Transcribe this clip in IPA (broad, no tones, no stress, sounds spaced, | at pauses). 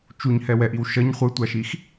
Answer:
t͡ʃ u ɲ h ɛ w ɛ ʔ i w ʃ ʌ ɲ χʷ ɯ tʷ a ʃ i x